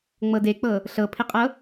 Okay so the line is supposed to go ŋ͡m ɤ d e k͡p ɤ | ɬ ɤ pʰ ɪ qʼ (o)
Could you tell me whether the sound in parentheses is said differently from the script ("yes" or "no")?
yes